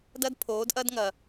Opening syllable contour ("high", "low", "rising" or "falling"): high